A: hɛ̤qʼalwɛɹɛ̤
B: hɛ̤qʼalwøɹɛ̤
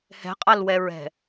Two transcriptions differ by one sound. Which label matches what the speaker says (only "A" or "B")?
A